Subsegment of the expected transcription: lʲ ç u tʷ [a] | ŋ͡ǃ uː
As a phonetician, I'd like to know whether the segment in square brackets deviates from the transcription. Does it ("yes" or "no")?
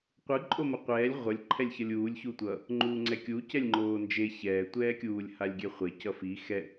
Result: yes